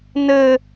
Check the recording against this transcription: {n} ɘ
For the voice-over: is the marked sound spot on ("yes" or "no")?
yes